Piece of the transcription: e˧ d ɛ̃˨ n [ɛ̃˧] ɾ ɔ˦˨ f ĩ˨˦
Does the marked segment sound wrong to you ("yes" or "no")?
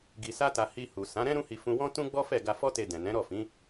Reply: yes